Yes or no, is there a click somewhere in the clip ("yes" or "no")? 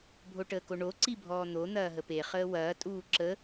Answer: yes